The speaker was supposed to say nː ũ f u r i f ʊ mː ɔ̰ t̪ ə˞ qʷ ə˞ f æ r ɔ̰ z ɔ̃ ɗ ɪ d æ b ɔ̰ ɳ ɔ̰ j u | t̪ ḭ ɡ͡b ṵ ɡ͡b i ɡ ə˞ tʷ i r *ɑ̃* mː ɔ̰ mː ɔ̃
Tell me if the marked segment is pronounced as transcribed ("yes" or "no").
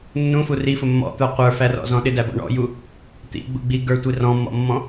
no